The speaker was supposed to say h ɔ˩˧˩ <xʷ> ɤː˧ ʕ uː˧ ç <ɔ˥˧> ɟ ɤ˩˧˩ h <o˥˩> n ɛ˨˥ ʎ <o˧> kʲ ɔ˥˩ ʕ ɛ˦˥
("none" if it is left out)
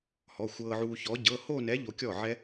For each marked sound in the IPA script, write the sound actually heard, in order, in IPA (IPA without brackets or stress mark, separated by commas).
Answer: xʷ, ɔ˨˥, o˥˧, o˧